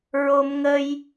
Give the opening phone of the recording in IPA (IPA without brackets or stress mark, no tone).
ɹ